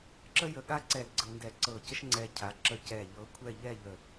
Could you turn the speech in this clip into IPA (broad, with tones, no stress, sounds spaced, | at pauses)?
ǁ ə˥ j ə˧˩ ɠ a˥ ǀ ɛ˧˩ l ɡ͡ǀ ɤ˧ n d ɛ˧˩ ǀ ɤ˧˩ c ə˥ ʃ ŋ͡ǀ ɛ˧ cʰ a˩˧ ǁ ə˧˩ c ɛ˧˩ ʎ ɤ˧ kʷʰ ɛ˥˧ ʎ ɛ˥˧ ʎ ə˧˩